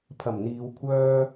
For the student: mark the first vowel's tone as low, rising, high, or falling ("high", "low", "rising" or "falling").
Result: low